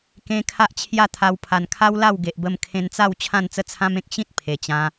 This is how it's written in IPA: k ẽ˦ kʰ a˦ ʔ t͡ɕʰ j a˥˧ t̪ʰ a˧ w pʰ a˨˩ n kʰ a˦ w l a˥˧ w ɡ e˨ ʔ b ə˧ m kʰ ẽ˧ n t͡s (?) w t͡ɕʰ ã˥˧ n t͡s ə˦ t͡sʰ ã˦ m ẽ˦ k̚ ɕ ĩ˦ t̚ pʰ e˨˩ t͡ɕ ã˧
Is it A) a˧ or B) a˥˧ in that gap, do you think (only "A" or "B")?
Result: B